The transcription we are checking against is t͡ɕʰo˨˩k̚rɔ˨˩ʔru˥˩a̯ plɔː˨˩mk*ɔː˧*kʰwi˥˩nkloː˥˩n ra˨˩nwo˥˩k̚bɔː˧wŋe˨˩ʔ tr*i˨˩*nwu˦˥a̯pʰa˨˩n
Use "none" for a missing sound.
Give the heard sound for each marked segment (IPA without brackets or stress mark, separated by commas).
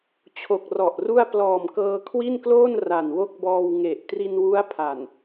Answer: ɤː˧, i˧